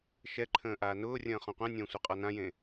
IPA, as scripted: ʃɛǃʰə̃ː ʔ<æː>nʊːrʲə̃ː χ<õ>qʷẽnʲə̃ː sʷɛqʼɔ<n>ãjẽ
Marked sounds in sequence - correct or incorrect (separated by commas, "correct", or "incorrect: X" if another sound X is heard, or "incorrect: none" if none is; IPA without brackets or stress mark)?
incorrect: aː, incorrect: ɔ̃, correct